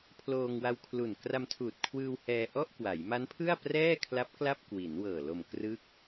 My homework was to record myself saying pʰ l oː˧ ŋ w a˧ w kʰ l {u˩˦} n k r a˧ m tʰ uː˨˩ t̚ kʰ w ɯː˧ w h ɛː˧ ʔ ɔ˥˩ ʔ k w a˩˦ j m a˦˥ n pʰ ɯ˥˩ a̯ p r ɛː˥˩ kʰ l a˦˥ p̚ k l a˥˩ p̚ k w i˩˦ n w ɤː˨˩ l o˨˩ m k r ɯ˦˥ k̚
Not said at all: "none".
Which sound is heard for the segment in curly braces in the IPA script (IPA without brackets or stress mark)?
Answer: u˨˩